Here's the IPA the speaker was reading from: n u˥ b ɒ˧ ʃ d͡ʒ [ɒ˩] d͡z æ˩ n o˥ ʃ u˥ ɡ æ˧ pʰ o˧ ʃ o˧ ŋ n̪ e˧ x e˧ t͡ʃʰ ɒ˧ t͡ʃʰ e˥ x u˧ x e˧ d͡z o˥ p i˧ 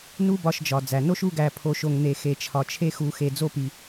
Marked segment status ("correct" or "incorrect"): correct